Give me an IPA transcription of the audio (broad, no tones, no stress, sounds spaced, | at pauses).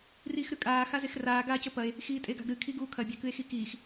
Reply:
r iː x ɾ ʉ kʼ aː x a z e x r aː ɡ aː c ɵ p ɐ e̯ | x iː tʼ e ɡ a̤ ɡ ɾ ɨ kʰ i ɡ uː kʰ ɐ bʲ a k ɨ e̯ x i k iː x